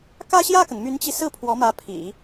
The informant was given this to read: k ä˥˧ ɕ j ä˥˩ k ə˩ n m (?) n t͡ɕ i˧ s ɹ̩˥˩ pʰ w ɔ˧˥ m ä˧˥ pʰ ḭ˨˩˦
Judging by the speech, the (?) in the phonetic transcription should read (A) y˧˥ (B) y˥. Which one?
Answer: A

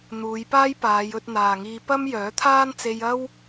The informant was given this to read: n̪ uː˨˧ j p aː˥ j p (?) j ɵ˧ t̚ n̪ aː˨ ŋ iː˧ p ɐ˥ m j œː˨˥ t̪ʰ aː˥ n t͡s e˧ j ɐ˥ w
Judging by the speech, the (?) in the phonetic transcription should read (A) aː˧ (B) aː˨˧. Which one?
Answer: B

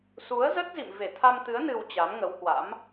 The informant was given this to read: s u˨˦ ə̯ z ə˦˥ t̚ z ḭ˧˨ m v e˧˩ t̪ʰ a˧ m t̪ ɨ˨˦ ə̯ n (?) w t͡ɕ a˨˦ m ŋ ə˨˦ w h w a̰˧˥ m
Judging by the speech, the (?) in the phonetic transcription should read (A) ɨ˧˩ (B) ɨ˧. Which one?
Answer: B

